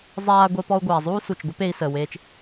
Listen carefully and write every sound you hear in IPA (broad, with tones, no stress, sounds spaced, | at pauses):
zˤ aː˧ ɡʷ e˧ p ɔ˧ u̯ ɡʷ aː˩ zˤ uː˥ s u˩ t͡ʃ ɡʷ ə˥ p e˧ i̯ s əː˩ w eː˧ t͡ʃ